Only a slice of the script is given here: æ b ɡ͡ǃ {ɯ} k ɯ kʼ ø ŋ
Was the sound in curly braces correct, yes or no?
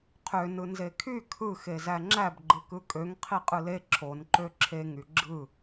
yes